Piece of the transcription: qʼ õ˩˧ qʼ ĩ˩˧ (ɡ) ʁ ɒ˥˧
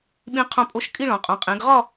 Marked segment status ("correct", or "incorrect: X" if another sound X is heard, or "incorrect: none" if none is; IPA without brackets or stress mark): correct